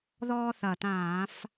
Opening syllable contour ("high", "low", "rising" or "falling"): high